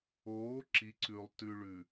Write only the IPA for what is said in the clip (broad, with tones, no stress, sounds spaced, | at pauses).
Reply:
oː˨˦ ǁ i˨ ǀ ʉ˨ lˠ t ʉ˨ ɭ ʉ˨